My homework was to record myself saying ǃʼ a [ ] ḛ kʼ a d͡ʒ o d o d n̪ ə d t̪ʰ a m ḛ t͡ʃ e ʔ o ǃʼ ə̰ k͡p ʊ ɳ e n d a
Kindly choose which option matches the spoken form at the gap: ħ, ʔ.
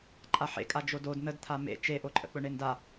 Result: ħ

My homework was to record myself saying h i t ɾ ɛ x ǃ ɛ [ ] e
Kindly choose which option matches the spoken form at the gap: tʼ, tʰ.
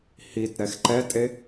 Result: tʼ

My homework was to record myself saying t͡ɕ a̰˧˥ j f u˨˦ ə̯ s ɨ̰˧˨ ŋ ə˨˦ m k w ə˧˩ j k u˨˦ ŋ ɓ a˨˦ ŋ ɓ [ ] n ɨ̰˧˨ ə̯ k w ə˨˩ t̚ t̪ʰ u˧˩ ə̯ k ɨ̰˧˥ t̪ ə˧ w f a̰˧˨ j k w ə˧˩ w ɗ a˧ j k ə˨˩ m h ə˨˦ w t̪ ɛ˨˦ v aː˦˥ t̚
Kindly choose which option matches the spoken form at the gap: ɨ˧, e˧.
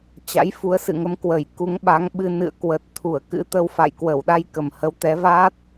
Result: ɨ˧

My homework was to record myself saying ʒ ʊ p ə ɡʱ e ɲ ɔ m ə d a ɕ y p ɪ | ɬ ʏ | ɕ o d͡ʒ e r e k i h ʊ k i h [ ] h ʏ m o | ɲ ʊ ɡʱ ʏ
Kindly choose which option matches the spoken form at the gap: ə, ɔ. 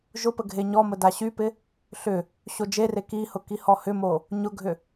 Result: ɔ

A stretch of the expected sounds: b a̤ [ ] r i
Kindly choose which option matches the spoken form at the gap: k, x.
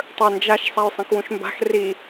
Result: x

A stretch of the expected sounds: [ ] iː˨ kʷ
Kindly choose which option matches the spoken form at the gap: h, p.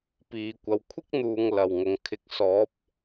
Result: p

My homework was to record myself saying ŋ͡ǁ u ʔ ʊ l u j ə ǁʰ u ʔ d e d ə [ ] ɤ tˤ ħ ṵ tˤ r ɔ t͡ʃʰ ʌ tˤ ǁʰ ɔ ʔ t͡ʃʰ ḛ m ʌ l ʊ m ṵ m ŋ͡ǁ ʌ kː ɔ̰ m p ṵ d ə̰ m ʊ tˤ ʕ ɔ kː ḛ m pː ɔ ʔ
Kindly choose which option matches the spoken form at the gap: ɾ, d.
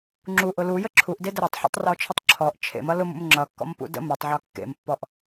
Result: ɾ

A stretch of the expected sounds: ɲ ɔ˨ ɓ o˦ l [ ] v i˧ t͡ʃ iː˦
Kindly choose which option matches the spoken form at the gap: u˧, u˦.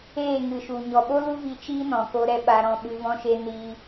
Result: u˦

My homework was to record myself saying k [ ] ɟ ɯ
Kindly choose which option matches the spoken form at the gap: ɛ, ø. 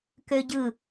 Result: ø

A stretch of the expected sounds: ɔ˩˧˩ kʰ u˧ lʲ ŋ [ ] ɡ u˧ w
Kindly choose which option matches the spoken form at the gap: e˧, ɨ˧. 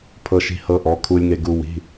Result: e˧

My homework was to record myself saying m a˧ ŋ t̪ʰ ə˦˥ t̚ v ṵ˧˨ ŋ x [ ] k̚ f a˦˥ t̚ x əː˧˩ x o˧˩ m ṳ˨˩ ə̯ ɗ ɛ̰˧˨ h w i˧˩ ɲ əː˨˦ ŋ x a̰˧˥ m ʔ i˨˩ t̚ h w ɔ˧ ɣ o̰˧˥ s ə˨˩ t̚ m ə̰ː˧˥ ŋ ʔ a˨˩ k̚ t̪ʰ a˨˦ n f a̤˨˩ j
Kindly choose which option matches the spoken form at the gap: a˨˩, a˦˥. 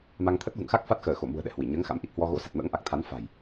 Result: a˦˥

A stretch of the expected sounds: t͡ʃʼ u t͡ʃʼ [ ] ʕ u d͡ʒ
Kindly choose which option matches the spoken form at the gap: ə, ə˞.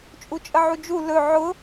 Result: ə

